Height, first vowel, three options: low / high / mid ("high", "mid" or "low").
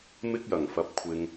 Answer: high